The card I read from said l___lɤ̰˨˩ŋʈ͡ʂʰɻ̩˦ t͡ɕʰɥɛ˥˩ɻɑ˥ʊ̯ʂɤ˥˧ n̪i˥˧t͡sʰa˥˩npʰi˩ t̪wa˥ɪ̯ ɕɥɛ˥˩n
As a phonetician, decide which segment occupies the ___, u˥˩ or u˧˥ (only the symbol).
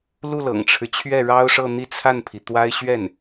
u˥˩